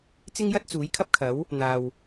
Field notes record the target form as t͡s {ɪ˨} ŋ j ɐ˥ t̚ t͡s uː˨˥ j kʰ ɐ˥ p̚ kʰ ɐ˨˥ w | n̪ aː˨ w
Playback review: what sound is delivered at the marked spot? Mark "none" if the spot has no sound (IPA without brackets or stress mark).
ɪ˥